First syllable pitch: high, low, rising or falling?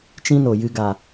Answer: high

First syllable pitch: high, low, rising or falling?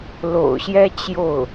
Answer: low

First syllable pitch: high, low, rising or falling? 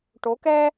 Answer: rising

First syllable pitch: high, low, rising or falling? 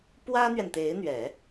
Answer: high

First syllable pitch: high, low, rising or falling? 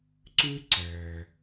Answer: high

